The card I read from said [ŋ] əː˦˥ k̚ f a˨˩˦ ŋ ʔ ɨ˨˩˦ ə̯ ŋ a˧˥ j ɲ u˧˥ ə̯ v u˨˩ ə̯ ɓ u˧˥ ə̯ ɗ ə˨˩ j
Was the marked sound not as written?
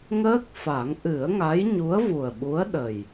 no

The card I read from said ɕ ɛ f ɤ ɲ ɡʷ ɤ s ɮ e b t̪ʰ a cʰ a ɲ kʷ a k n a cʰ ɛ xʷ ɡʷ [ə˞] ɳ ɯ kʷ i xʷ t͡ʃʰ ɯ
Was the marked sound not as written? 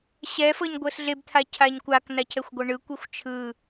yes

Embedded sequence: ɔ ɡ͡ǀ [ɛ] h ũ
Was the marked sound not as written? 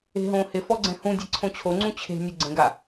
yes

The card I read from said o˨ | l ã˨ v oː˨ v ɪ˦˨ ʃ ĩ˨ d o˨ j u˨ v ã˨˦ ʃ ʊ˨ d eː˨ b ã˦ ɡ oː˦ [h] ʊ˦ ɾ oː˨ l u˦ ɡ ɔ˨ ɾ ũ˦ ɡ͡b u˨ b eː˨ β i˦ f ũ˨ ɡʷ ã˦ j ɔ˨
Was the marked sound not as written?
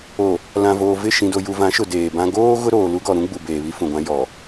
yes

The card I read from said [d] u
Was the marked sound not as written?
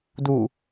no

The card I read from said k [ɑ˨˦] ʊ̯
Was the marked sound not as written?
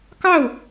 yes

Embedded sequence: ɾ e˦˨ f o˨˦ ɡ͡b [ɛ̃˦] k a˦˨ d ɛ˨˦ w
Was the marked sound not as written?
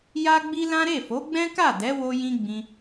no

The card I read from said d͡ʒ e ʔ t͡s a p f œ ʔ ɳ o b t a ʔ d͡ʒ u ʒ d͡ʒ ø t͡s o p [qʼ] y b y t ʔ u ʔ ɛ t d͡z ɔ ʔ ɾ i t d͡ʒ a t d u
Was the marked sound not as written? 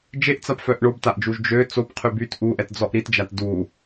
yes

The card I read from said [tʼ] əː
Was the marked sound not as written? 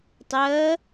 yes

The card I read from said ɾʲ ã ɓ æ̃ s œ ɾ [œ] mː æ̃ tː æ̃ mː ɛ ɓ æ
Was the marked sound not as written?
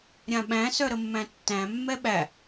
yes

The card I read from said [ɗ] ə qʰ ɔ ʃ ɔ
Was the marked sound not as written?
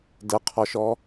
yes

